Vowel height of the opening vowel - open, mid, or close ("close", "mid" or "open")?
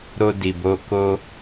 mid